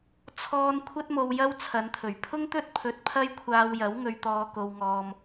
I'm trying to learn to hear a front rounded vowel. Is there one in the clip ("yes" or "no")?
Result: no